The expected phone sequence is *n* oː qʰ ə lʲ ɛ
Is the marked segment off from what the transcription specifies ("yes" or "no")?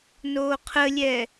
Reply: no